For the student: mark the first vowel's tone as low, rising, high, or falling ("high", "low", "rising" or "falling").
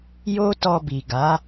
high